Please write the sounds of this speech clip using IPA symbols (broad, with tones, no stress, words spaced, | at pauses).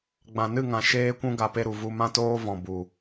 ɡ͡bã˨nɨ˦˨ŋã˨ ʃeː˧kʷũ˧ ɡa˨pe˧ɾu˨ vu˧mã˦toː˦ vɔ̃˨ bu˨